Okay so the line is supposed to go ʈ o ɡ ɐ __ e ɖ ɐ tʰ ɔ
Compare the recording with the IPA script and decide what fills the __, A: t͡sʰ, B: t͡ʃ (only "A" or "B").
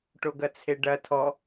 A